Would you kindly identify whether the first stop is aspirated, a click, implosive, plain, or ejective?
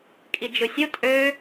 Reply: ejective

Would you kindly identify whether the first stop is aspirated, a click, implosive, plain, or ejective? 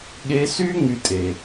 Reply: implosive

